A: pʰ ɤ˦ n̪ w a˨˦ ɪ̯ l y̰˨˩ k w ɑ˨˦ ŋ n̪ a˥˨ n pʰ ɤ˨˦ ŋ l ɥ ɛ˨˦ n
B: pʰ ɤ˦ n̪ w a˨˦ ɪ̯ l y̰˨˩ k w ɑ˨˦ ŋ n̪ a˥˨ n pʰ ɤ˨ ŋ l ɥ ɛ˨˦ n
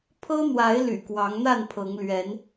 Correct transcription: A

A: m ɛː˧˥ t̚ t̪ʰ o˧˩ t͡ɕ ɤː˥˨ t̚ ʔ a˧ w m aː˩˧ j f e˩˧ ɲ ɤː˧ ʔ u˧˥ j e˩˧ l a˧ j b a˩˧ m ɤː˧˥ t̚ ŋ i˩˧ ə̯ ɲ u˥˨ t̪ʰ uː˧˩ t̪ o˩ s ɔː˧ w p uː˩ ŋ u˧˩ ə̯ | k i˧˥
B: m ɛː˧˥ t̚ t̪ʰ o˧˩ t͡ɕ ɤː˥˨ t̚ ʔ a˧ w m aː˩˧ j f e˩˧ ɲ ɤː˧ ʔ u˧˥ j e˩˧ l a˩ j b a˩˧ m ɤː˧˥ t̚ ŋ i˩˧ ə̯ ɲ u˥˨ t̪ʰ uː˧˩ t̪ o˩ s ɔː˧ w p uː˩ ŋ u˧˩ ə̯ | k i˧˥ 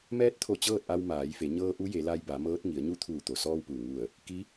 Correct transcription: A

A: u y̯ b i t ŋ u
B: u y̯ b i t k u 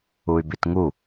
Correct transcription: A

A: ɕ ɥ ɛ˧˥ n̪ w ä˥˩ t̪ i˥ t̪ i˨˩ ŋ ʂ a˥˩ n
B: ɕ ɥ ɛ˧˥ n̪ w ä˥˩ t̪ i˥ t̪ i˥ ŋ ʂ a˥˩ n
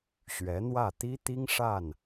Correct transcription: B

